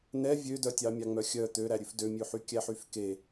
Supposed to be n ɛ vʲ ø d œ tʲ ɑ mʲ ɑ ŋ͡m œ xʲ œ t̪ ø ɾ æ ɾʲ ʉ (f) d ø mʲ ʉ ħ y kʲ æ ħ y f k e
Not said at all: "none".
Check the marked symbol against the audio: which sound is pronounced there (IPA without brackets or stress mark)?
f